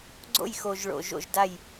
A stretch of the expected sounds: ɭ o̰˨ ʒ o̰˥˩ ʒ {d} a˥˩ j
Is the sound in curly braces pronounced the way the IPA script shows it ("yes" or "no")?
yes